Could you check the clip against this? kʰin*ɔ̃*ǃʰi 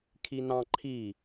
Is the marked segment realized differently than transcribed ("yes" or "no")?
yes